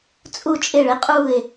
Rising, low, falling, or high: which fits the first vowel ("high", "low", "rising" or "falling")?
falling